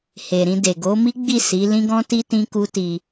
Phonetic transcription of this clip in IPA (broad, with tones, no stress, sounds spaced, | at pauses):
h e˨ ɾ ĩ˧ d e˨ ɡ o˨˦ m i˦ ɡ͡b i˦˨ s i˨˦ l ĩ˦ ɡ ɔ̃˦ t i˦ t ĩ˦ k u˦ t i˧